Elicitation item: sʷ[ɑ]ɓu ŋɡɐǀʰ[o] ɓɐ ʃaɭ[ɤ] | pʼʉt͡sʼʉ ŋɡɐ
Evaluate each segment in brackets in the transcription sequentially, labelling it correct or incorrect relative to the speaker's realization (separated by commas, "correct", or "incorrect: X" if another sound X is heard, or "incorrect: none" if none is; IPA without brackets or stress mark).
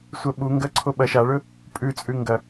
incorrect: ɐ, correct, incorrect: ɵ